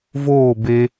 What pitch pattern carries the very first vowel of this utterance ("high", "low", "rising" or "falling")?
falling